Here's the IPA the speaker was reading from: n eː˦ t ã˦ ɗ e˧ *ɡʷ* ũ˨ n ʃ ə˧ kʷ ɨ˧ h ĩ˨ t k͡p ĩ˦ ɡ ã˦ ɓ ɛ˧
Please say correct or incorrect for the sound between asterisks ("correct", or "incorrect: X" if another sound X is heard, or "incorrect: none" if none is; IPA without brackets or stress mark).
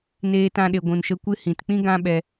correct